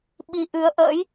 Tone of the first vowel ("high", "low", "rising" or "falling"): rising